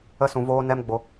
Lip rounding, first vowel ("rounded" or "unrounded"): unrounded